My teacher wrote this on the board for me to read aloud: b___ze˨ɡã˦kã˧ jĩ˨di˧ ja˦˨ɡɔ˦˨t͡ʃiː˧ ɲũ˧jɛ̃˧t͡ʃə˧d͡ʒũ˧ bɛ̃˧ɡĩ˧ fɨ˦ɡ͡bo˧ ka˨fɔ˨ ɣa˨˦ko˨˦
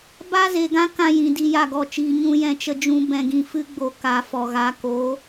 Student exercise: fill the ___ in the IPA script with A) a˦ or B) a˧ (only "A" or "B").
A